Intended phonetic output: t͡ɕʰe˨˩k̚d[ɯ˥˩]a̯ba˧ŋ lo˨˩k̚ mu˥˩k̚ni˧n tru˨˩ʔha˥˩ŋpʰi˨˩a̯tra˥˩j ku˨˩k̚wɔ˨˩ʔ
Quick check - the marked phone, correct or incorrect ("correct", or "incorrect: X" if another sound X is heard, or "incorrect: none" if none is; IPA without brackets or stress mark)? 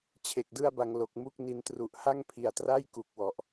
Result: correct